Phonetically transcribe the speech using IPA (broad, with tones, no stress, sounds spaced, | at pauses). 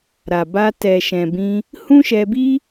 ɾ a˨ b a˧ t ɛ˨ ʃ ɛ̃˨ b ĩ˧ | h ũ˦ ʃ ɛ˧ b i˦